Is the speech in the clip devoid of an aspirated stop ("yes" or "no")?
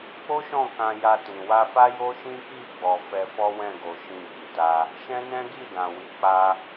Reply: yes